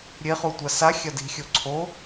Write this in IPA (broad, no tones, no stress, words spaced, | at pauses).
ɾʲeχutʷa sa xʲɐdi̤ xʲoǀʰo